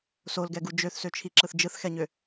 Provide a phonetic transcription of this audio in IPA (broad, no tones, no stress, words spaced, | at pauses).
solɡɛɡu d͡ʒøθsøt͡ʃʰiǁɯθ d͡ʒɯθxɛɲø